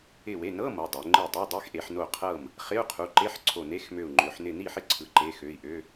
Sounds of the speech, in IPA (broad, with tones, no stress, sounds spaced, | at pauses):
ɪ˧˩ w e˩˧˩ n ɤ˧˥˧ m ɤ˩˧˩ dˤ ø˩˧ ŋ͡ǃ e˥˩ dˤ ø˧˥˧ dˤ e˧˥˧ x ʔ e˩˧ ħ n o˥˩ qʰ ɤ˥˩ m | χ ɪ˧˥˧ u̯ qʰ u˩˧˩ ǃ e˧˥˧ ħ ǀʰ o˧˩ n e˧˥˧ x m ø˧˩ u̯ ŋ͡ǃ ø˩˧ ħ n ɪ˧˩ n i˥˩ ħ ɪ˥˩ ǀʰ ɯ˩˧ ǃ e˩˧˩ x ø˩˧˩ i̯ ʔ ø˧˥˧